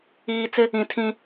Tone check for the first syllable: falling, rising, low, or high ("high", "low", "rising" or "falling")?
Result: low